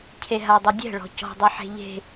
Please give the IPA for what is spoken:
cʰeɦadˤɐdʲɛ̤ ɭɔ̤cɔ̤ dˤɨħe̤ʎe̤

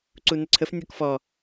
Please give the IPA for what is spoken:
ǀunəǀʰəf nʲɔkfɔ

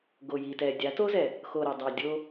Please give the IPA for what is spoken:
ɡo˨ji˨tɛ˨ dʲa˨˦to˦zɛ˨ | xo˨ɾɪ˨dˤa˨ dʲo˦

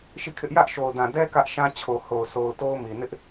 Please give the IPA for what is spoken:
ʃi˦˨kʰɪ˦ʔ jä˦ʔ ʃo˨ʊ̯dã˨dɛ˦ kä˦ʔ ʃã˦t͡ɕʰo˨ho˨ʊ̯ sʰo˨ʊ̯ to˦ʊ̯mi˨ nɪ˦ʔ

